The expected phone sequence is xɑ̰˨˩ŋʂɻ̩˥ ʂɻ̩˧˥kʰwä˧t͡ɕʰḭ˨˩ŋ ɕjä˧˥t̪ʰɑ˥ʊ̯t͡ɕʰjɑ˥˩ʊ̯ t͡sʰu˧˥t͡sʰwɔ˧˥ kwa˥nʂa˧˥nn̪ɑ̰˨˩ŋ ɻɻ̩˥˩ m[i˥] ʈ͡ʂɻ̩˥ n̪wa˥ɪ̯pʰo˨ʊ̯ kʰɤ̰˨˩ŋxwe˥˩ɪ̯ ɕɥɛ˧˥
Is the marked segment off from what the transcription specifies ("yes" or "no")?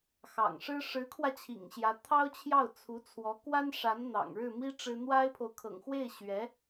no